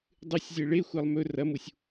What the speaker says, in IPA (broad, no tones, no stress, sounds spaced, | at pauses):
dˤ ɨ sʲ zʲ e ɭ e xʷ a lˠ m ɵ r ɐ m u sʲ